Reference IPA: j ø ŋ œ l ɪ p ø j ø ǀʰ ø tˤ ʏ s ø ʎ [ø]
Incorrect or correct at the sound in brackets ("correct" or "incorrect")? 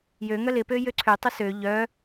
incorrect